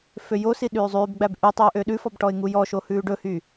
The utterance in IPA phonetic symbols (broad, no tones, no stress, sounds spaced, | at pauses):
f ø j o s i ɗ ʉː zˤ ʉː b ɡ͡b æ b ʔ y tˤ yː ʔ ø ɗ ʉ f ɔ b ʈ ɔ ɪ̯ ŋ u j ɔ ʃ o h ʉː ɖ ɵ h yː